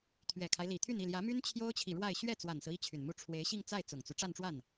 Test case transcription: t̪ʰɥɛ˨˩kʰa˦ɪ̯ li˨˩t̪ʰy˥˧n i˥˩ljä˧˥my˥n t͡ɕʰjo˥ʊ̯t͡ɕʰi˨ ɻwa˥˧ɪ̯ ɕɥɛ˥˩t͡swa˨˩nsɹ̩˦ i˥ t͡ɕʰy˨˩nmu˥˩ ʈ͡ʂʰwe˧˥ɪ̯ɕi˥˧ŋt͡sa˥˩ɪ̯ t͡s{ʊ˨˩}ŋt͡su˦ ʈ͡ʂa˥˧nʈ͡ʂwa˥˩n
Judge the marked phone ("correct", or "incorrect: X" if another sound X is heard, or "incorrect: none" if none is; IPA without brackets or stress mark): correct